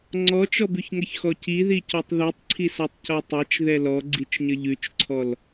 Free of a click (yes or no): no